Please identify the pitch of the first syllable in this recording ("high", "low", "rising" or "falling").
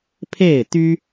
falling